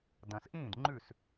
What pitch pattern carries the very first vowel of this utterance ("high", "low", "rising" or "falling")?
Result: low